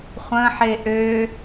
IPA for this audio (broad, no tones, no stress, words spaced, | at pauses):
χʷə̃ħe ʔø